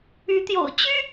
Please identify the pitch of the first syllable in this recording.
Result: rising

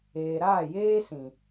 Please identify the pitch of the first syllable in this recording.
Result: low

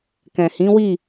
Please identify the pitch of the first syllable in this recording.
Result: low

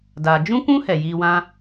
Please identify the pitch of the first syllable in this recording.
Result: low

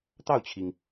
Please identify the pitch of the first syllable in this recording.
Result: falling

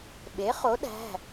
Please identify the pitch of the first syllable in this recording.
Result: rising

